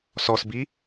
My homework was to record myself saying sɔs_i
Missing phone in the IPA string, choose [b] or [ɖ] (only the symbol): b